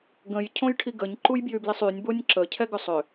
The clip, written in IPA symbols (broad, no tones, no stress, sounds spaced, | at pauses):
ɡ ə̃ j cʰ õ j ʈʰ i ɡ ə ɲ ǃ u j b j y b l i sˤ y nʲ b o nʲ ǁ ə cʰ ɛ ɡ ʏ sˤ ʏ